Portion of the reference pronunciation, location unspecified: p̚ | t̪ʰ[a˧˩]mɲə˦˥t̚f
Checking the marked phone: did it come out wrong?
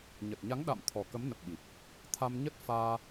yes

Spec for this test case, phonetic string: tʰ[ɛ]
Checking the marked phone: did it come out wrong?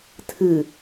yes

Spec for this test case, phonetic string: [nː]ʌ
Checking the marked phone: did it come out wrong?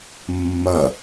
yes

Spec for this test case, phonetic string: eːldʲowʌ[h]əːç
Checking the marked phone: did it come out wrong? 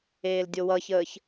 yes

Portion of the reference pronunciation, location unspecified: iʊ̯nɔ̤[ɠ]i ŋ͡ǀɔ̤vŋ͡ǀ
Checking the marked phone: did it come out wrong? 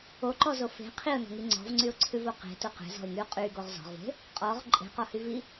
yes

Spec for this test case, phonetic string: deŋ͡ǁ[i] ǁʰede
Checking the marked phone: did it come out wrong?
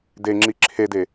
no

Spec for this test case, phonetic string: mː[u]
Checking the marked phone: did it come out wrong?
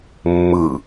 yes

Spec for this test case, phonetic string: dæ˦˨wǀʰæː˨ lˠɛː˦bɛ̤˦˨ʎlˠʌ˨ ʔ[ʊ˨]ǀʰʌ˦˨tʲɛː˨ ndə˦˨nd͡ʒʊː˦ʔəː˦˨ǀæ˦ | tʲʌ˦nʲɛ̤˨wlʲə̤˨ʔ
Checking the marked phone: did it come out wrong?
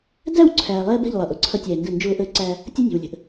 no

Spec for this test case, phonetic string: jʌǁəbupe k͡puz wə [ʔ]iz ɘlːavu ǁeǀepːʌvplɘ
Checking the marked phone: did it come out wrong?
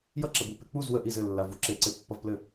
no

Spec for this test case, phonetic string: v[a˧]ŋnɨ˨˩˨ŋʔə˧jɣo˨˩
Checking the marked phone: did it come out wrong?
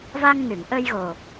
no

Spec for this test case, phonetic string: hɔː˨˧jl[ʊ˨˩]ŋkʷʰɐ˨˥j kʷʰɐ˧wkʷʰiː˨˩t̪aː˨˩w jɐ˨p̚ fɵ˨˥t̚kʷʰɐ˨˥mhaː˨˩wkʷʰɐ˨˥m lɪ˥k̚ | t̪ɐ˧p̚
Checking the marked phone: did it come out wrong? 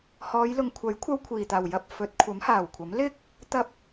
yes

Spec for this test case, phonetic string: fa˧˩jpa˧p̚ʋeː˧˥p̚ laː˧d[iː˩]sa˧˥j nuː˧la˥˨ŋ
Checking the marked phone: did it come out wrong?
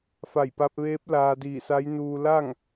yes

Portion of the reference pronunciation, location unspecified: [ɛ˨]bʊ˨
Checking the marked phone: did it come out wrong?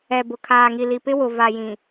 no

